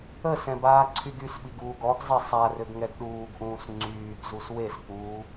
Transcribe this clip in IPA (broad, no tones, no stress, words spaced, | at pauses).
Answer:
əsɛ̃ baːǀʰyɡysɓiɡ uːɡɔɡzˤɛ sˤarøɡ ŋɛɡɗuːɡʔũːs ŋ͡ǀyːɡ zuswesk͡puː